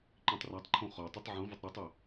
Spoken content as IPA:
ǃĩtˤratˤǃʰõ χɔtˤɪtˤ ʕũvʊtˤ ɾɛtˤɪ

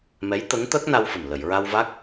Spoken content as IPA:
mɛ˧˥jt̪ə˧˥ŋ t̪əː˦˥k̚ na˧wfə˨˩m lə˨˩˨jɹa˧wva˦˥k̚

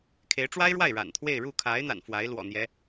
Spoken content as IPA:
kʰe˧˥ɪ̯ʈ͡ʂwa˥ɪ̯ɻwa˥˩ɪ̯ ɻa̰˨˩nt̪ʰwe˥˧ɪ̯ ɻu˥˩kʰa˧˥ɪ̯ n̪a̰˨˩nfwa˧˥ɪ̯lwɔ̰˨˩n̪jɛ˧˥

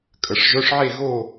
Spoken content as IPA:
kʼə˩˧˩ʂʒœ˧˥˧ʂʕe˥˧ ɣo˥˧

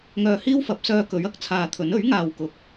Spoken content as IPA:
ŋœː˧hiː˥w fɐ˨˥p̚sœː˧kɵ˨˥ɥ ɐ˧k̚t͡sʰaː˧t̪ʰɵ˨˥n ɵ˨˥ɥŋaː˨wkʊ˨˥k̚

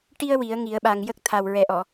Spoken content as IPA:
ʈi˧ə̯ wi˨˩˦ə̯ŋi˨˩˦ə̯ ɓa˨˩ŋjə˦˥k̚t̪ʰa˨˩w ɹɛ˨˩ʔɔ˨˩˨

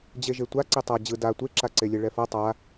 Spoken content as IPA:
d͡ʑeʒetʷa ǀitˤa d͡ʑɯ da tʷeǁaǀelʲe ɭɛfʌ tˤa

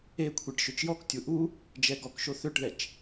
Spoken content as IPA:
ekʷʰiʈ ʃøt͡ʃjɔktʲu ʔu | d͡ʒɛɡɔkʃo θøʈðɛt͡ʃ

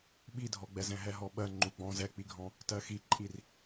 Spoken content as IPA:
ɓidʱɔɡ͡bɛz ɛ̃ɦɛɦɔɓɜ ŋ͡ǃuɡ͡bɔ̃ zɛk͡piɡʱɔ̃ | tɜxiǃʼir

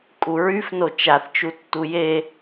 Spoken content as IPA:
kʼuɹyfno t͡ʃaθt͡ʃutːu je

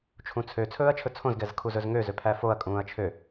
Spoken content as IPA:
t͡ʃʰũt͡sʰø t͡sʰɵːɐ̯t͡ʃʰɵt͡sʰõz ɡɛzkʰuzɵzŋø zøpʰæfoɐ̯ kʼũːɐ̯t͡ʃʰø

